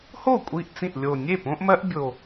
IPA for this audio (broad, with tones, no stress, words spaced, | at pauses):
ho˥˩ kʷʼi˥˩ʔ t͡sĩ˥˩ʔ lʲo˨˩nʲe˥˩ põ˦ʔmɜ˦ʔ bʲo˨˩